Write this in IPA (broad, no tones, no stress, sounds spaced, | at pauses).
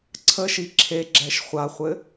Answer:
ǀʰ ə ʃ i ǁʰ e ɡ͡ǁ ɛ ʃ χʷ a χʷ ɘ